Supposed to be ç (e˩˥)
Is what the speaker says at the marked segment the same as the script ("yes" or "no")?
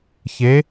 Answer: yes